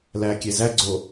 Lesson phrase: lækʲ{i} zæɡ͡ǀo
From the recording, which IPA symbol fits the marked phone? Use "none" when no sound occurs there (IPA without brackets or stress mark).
e